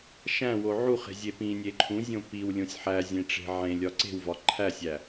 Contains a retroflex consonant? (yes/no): yes